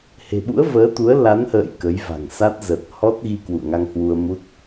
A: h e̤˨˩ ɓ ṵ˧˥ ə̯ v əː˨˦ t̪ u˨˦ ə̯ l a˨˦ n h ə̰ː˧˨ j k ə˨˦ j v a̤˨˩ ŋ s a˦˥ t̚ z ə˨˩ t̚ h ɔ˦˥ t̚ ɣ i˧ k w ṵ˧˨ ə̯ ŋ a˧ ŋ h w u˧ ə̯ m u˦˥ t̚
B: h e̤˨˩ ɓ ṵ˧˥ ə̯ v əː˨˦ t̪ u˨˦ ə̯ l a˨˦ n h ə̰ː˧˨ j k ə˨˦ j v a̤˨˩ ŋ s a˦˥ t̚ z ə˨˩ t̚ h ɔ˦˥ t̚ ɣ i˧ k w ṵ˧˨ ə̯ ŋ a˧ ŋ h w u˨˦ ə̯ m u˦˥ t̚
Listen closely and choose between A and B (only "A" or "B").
A